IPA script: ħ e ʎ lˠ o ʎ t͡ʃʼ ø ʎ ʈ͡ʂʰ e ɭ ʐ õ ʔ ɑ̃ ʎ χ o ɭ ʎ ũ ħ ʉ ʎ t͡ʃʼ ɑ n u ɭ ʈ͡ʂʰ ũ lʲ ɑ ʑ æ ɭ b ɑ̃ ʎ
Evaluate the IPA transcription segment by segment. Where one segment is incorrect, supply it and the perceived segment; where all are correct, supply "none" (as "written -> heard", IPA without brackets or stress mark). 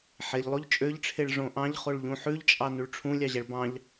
none